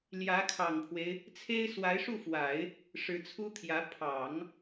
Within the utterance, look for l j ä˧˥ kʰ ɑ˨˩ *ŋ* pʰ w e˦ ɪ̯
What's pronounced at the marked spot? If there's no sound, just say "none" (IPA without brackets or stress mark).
ŋ